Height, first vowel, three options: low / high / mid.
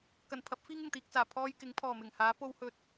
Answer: low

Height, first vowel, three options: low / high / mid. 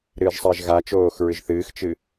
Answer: high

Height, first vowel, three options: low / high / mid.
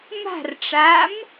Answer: low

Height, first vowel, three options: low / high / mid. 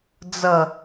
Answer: mid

